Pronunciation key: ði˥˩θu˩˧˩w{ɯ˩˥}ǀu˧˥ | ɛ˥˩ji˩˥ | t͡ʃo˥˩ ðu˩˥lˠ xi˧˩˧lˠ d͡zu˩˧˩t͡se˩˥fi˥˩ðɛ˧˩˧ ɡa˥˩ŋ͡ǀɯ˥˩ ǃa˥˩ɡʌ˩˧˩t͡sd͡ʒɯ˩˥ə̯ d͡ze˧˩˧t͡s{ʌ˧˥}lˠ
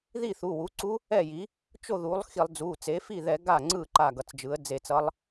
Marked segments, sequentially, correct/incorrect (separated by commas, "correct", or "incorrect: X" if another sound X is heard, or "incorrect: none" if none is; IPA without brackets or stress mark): incorrect: u˩˥, correct